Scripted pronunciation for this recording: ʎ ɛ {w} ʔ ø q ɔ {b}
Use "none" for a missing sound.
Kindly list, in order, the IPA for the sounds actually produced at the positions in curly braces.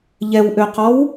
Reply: w, w

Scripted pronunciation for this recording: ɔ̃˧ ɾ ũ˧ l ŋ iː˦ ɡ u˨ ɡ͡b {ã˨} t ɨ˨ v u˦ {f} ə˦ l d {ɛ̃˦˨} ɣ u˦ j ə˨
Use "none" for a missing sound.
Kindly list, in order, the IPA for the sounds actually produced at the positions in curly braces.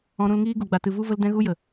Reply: a˨, v, ɛ̃˦

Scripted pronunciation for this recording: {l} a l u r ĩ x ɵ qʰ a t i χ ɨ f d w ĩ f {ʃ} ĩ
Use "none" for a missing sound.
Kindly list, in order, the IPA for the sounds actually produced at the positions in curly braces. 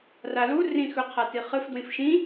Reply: r, ʃ

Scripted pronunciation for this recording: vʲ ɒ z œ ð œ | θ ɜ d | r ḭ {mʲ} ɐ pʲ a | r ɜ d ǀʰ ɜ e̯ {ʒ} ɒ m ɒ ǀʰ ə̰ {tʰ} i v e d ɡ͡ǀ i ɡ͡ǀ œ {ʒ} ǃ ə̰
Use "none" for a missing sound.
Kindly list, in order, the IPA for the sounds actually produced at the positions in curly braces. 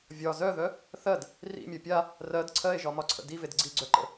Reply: mʲ, ʒ, d, none

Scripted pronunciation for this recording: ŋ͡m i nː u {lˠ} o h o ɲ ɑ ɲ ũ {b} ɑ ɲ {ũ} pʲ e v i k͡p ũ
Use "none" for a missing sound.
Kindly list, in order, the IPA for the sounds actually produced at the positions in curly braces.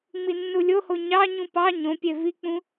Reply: lʲ, p, õ

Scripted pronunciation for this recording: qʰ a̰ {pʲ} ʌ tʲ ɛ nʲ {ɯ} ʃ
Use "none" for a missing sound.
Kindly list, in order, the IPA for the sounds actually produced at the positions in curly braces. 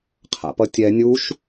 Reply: p, u

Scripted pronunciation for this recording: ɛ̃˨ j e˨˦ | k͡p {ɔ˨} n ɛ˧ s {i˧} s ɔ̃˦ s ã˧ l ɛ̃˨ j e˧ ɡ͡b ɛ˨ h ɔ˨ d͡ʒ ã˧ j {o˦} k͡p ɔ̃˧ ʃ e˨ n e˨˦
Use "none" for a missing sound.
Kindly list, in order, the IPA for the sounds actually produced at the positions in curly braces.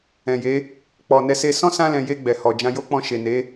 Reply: ɔ˨, e˧, o˦

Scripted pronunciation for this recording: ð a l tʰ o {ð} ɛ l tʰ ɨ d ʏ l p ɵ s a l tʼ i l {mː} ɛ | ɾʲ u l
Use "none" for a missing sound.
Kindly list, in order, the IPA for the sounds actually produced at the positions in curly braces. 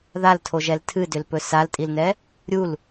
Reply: ʒ, n

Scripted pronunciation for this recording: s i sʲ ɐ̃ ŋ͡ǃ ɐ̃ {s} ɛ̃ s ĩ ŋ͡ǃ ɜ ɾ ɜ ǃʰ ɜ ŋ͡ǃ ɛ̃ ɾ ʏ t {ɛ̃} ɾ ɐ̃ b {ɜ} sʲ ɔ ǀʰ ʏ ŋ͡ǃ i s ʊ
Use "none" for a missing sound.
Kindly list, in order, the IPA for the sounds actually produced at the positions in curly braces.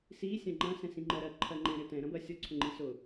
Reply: s, ɛ̃, ɜ

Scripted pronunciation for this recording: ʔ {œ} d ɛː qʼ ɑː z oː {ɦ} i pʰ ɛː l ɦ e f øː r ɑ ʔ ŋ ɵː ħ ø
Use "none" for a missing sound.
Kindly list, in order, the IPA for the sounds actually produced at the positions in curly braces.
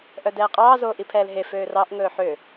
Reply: œ, ʔ

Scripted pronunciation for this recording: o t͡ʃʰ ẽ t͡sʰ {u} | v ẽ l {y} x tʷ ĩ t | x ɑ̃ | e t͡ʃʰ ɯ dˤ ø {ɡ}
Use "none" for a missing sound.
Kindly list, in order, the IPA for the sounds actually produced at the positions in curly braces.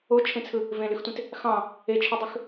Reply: ɯ, y, x

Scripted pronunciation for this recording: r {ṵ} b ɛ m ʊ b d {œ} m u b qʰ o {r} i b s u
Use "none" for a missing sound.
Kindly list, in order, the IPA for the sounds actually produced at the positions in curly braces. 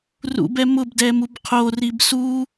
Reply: ṵ, ɛ, r

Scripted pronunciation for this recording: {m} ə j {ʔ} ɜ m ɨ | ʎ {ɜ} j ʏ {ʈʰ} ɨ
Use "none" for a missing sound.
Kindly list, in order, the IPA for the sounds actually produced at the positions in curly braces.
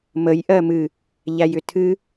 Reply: m, ʔ, æ, tʰ

